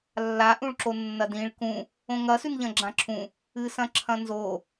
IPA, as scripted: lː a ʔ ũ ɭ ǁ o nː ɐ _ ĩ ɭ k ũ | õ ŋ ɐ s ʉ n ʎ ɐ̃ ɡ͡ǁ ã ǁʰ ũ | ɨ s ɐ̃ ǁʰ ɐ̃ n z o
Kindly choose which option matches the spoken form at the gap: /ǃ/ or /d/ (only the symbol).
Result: d